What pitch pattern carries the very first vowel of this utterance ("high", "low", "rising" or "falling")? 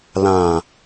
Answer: low